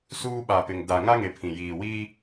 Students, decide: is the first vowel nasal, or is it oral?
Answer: oral